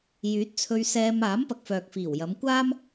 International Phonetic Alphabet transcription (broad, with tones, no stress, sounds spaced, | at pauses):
j yː˨˥ t̚ t͡sʰ ɵ˧ ɥ s ɛː˧ m aː˨˥ m p ɐ˨ k̚ f œː˨ k̚ f iː˨˩ w j ɐ˨˧ m kʷ aː˥ m